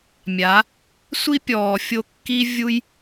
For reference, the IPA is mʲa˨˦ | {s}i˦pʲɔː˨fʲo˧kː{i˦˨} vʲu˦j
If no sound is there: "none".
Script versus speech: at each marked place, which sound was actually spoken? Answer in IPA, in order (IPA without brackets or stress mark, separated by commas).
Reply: sʷ, i˦